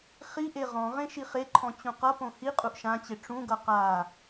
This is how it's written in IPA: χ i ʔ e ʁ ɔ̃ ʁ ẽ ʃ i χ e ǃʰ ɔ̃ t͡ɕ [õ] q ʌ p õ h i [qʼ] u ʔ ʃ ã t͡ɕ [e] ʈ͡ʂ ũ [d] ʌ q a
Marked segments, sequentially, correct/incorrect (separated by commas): incorrect, correct, correct, incorrect